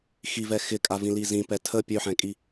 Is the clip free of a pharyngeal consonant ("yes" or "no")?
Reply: no